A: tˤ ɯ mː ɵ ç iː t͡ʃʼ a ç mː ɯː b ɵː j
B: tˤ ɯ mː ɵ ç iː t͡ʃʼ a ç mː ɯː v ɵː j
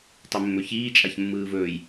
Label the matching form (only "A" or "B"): B